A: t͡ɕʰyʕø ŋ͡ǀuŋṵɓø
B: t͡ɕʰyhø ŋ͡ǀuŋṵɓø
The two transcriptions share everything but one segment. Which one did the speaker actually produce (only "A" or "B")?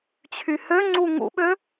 B